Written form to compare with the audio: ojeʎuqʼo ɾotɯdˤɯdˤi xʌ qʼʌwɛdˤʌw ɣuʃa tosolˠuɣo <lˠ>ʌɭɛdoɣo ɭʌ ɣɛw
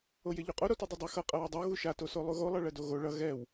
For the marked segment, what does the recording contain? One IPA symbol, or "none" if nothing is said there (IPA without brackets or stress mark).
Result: lˠ